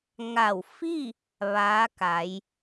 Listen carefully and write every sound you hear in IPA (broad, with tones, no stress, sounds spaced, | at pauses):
ŋ a˧˩ w f i˥˨ | ʋ aː˧˥ k a˩˧ j